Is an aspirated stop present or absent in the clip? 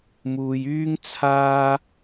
present